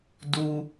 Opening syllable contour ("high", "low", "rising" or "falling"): high